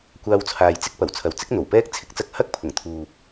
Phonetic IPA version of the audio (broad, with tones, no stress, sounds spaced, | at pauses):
kʷ aː˧ w t͡sʰ aː˨ j t͡s ɪ˥ k̚ p ɐ˨˩ w t͡sʰ ɐ˨ w t͡s ɪ˥ k̚ n̪ o˨˩ w p ɛː˥ k̚ t͡sʰ ɪ˥ k̚ t͡s ɐ˧ k̚ h ɐ˥ k̚ pʰ ʊ˨˩ ŋ t̪ʰ uː˨ p̚